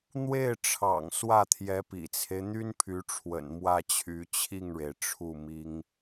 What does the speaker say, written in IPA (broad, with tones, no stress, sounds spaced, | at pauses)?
n̪ w e˥˩ ɪ̯ ʈ͡ʂʰ ɑ̰˨˩ ŋ s w ä˥˩ t̪ʰ j ɛ˧˥ p ḭ˨˩ t͡sʰ e˦ ɪ̯ n̪ y˥ n pʰ y˧˥ ʈ͡ʂʰ w ə̰˨˩ n m w ä˥˩ t͡ɕʰ y˧˥ t͡ɕʰ i˥˩ ŋ ɻ e˩ ɪ̯ ʈ͡ʂʰ u˥˩ m i˥ ŋ